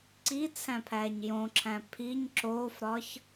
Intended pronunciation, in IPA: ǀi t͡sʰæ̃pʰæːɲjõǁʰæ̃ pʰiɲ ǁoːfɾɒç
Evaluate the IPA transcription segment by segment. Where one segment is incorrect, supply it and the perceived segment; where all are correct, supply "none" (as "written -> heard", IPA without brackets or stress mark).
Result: none